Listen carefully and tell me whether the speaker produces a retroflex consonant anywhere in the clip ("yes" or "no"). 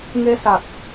no